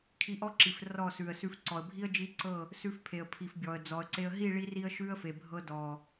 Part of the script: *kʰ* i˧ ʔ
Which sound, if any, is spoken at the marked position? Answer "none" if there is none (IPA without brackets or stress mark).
kʰ